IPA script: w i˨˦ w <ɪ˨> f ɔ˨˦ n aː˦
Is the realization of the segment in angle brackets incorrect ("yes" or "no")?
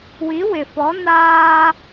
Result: no